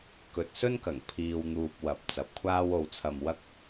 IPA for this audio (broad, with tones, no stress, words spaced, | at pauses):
kɵ˨t̚sɵ˥nkɐ˨˩ŋ pʰiː˨wn̪uː˨p̚ wɐ˨˥p̚ t͡sɐ˨˥p̚kʷʰaː˥w o˧wt͡sʰɐ˧mwɐ˥k̚